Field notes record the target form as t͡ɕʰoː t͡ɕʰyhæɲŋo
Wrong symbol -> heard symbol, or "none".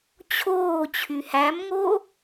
ɲ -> m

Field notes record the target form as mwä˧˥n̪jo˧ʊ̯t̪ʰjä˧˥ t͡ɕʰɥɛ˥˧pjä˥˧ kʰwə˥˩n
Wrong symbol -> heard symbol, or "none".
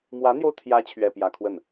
none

